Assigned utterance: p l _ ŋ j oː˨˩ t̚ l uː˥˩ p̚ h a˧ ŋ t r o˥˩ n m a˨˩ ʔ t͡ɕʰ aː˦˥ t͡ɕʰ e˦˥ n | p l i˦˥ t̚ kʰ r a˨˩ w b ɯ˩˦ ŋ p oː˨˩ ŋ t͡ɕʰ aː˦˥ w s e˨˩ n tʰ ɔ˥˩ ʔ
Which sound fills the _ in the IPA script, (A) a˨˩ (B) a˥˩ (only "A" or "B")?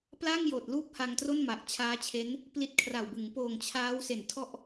B